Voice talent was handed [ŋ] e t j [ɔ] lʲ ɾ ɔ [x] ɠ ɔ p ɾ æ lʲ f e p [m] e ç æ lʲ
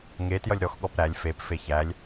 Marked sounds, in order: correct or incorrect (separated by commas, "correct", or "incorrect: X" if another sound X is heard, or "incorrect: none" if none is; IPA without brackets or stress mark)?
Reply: correct, incorrect: ʌ, correct, incorrect: f